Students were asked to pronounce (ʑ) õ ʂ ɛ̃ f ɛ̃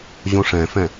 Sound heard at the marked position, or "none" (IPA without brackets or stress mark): ʑ